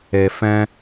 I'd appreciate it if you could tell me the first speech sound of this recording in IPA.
e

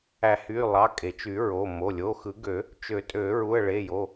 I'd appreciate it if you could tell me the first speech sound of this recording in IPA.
æ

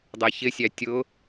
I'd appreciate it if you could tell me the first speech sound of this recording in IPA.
dˤ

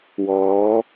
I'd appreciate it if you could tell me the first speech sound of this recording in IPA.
w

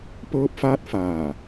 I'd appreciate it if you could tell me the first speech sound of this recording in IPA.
p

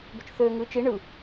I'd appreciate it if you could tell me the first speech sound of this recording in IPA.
b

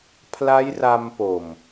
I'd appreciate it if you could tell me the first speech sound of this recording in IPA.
pʰ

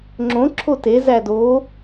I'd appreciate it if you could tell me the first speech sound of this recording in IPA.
ŋ͡ǁ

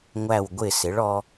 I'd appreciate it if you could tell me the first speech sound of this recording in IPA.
ŋʷ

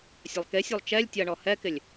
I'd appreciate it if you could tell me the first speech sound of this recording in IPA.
sʲ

